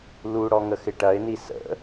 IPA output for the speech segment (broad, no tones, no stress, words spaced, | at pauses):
luɽɔ ŋəxɪʈɐɪ̯ni sə̰